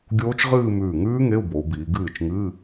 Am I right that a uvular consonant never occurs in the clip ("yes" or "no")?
no